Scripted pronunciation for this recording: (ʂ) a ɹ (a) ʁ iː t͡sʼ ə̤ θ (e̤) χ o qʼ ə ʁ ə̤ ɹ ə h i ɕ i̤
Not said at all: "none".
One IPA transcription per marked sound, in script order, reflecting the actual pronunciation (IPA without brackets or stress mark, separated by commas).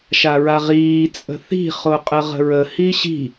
ʃ, a, i̤